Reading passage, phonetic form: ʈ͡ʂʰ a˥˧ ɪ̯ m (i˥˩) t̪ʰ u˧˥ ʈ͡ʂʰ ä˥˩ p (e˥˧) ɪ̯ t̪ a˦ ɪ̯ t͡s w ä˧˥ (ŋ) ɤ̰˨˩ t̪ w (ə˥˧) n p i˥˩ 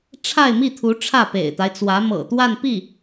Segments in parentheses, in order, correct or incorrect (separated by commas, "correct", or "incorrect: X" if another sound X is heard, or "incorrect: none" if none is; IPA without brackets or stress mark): correct, incorrect: ḛ˨˩, incorrect: m, incorrect: a˥˧